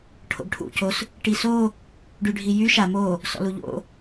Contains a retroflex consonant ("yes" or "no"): yes